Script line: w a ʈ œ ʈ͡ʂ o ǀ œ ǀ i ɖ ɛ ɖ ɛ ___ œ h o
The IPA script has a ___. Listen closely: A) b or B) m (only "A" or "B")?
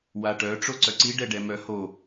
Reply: B